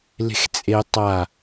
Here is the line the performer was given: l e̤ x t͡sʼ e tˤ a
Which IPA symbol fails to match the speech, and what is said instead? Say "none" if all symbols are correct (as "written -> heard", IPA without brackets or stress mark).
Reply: none